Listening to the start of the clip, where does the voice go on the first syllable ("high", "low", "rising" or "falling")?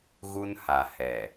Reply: high